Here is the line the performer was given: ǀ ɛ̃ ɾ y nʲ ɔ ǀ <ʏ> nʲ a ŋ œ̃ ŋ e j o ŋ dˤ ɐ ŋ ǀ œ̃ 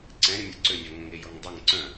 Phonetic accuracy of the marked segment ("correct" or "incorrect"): correct